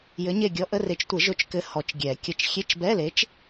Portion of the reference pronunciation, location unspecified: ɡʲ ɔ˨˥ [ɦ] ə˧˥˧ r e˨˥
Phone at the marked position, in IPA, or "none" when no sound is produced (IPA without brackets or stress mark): ʔ